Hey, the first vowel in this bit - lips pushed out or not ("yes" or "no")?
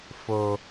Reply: yes